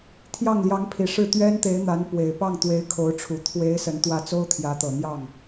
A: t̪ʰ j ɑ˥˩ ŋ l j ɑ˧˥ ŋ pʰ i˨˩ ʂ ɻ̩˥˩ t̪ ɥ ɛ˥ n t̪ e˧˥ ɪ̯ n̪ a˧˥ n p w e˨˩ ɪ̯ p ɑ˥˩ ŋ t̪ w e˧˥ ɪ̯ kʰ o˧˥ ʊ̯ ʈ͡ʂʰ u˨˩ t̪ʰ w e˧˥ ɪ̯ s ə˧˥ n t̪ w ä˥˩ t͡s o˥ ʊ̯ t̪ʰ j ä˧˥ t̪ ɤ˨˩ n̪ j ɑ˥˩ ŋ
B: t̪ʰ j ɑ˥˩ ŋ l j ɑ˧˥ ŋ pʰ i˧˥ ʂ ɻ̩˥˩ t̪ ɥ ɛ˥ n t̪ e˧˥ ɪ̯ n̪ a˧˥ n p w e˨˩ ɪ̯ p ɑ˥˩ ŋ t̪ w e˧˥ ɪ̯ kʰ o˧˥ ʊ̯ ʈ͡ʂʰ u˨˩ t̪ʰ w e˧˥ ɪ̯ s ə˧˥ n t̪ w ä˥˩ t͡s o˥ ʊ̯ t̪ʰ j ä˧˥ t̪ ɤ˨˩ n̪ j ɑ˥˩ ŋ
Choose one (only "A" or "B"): A